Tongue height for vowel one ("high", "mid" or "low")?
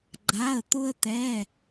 low